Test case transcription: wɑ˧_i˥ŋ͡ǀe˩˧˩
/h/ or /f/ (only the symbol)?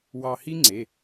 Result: h